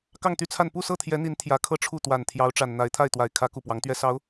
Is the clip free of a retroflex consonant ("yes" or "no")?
no